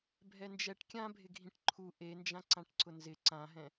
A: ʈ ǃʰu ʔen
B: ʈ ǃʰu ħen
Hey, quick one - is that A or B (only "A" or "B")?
A